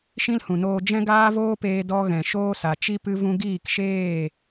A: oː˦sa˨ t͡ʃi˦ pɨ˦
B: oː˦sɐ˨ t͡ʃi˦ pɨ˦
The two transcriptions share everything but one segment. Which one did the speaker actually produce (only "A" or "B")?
A